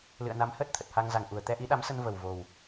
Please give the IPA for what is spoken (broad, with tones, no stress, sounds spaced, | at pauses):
l ɨ̰˧˨ ə̯ n a˨˦ m h əː˦˥ t̚ t̪ʰ ə˨˩ t̚ h a˧ ŋ z a˨˩ ŋ ʔ u˨˩ ə̯ t̪ ɛ˧ ʔ i˨˦ ɗ a˨˦ m s ə˧ n v ə˨˩ w v o˨˩ w